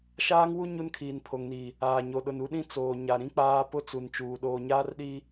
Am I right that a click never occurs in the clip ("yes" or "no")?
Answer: yes